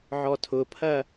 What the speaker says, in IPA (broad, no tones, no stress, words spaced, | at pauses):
ʕɔtʰʊpʰɐ